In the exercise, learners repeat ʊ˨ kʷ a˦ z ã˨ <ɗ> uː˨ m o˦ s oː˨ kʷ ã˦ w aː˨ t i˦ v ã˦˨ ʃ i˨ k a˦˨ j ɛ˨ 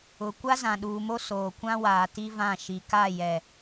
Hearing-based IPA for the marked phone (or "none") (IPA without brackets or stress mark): ɗ